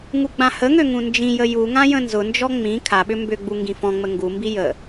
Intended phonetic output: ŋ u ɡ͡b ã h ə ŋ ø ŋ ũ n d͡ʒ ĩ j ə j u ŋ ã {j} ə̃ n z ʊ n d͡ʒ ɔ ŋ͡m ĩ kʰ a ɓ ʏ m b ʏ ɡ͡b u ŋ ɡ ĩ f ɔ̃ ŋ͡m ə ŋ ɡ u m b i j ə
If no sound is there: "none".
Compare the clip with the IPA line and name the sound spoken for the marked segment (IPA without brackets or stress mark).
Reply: j